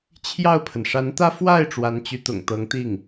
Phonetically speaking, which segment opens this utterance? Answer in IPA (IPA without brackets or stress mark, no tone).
t͡ɕʰ